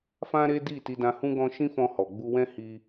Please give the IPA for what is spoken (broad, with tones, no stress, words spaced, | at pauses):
fã˦ɾe˦di˦˨ ti˧dã˧ hũ˧ɡɔ̃˧ ʃĩ˦fɔ̃˧hɔ˨ ɡ͡bu˧wɛ̃˦hi˧